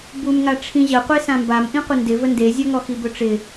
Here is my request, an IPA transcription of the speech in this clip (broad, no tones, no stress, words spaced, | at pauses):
bumŋa ʈ͡ʂʰĩʑəqʷe sãmbam ʔĩqʷəndɪ vəndezʲɔŋɔ xibɵʈ͡ʂɪ